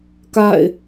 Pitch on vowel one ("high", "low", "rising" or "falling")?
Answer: falling